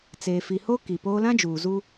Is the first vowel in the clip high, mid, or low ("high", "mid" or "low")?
mid